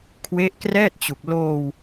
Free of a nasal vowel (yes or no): yes